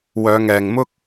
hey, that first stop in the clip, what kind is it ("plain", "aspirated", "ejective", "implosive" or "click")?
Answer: plain